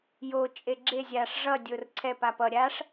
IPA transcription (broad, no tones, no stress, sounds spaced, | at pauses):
j o t͡ʃʼ e ɡ͡ǁ e zʲ a ʂ ʐ ʌ dʲ o r ǀʰ ɛ p a p ʌ ɾʲ a ʂ